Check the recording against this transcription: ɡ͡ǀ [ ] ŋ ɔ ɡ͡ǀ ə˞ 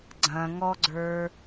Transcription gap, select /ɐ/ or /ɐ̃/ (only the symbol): ɐ̃